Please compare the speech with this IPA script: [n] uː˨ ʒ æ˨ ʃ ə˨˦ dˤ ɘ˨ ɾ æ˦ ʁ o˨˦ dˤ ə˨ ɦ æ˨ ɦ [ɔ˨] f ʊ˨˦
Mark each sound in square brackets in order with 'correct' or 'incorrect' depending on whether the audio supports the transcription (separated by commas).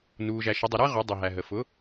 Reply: correct, incorrect